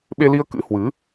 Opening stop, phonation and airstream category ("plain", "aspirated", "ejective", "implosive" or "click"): implosive